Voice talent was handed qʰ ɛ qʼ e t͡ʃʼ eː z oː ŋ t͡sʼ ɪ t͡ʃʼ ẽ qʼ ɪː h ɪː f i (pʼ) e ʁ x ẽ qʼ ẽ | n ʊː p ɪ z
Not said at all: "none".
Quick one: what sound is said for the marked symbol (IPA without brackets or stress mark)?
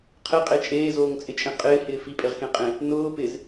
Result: pʼ